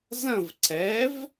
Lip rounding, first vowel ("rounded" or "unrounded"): unrounded